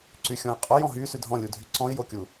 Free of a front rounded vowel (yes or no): no